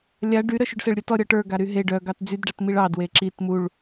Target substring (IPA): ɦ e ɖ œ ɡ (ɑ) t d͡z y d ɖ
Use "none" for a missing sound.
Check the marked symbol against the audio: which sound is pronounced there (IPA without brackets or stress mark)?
ɑ